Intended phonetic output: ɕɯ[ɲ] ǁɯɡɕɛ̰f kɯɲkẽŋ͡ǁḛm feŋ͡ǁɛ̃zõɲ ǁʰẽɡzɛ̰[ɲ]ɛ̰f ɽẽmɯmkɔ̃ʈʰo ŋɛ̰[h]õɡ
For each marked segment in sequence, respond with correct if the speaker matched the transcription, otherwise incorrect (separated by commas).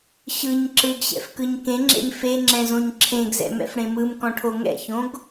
correct, incorrect, incorrect